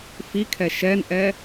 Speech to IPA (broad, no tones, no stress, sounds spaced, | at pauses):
f i kʰ ɛ ʃ ɛ n ʔ ɛ